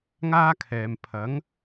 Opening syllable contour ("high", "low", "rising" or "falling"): high